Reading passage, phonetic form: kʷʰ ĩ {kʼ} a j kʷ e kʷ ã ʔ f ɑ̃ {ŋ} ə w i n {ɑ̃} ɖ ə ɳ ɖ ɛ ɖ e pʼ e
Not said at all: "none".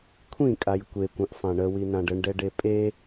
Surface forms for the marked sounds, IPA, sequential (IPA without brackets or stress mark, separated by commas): kʼ, ɳ, ã